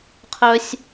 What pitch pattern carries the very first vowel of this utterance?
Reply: high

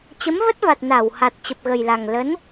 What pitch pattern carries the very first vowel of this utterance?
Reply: rising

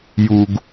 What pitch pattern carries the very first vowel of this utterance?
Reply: low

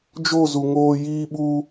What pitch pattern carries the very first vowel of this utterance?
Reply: falling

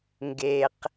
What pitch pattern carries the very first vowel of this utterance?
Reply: low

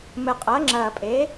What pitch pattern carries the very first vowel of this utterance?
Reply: low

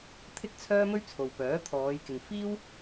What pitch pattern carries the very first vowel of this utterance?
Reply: high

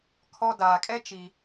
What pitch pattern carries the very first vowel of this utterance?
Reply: high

